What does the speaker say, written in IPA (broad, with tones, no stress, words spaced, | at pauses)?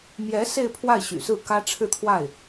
mjɛ˧˥ se˥˧ɪ̯pʰwa˥˩ɪ̯ ɕy̰˨˩sɹ̩˥˩kä˥ ʈ͡ʂʰɻ̩˥˧t̪ʰwa˥˩ɪ̯